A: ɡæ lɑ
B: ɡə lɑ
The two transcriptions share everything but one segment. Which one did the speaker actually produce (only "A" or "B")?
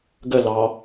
B